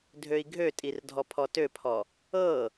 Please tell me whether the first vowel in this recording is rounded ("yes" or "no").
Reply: yes